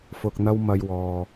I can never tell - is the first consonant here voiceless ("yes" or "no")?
yes